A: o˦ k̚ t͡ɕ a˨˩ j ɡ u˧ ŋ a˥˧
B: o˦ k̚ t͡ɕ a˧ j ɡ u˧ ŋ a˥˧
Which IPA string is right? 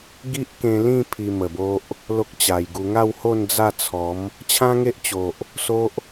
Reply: A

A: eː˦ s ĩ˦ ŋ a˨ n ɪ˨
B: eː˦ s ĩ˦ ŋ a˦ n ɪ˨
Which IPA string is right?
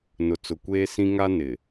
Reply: B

